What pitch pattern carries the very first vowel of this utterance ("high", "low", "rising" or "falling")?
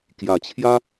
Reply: low